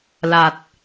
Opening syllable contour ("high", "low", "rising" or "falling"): low